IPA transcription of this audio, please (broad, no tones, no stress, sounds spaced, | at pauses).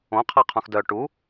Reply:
õ qʰ a qʰ ũ x d œ ʈ u